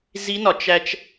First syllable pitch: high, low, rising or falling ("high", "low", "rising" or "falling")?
rising